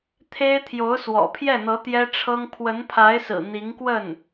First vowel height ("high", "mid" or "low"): mid